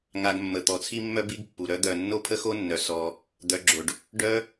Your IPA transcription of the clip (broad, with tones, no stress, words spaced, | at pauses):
ŋa˧ɡmːə˨ t̪ɔ˨t͡sʰi˦mːœ˦ bi˦ɡ pːu˨ ɾœ˧d̪œ˨ nːo˦pʰə˦xo˦nːœ˨ sɔ˧ | d̪œ˧ɡ͡ǁo˨ɖ | ɖœ˦